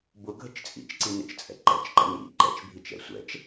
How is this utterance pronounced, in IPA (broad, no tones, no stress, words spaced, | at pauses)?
bʊ ɡʱət͡ʃt͡sʼḭt͡ʃǀi nə̰t͡ʃt͡sʼɛ̰ǃɛ̰t͡ʃǃə̰ nḭ ǃɛ̰t͡ʃbʱit͡ʃ ɛ̰sʷɛ̰t͡ʃ